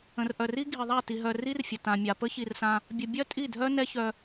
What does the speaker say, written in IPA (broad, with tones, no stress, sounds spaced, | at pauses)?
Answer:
ə̃˨ r ʔ œ˨ r i˦ ɡʱ i˨ ðˤ a˦˨ t i˧ ɦ œ˧ r i˦ r fʲ ə˨ t ã˨ mʲ a˨ p ə˦ ç i˧ r s ã˧ | bʲ ə˧ bʲ œ˦ tʼ i˦˨ dʱ œ˦ n ɛ˦ ç œ˧